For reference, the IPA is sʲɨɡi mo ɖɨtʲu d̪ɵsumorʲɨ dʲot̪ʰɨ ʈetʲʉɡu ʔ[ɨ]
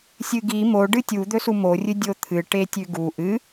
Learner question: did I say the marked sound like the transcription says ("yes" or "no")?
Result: yes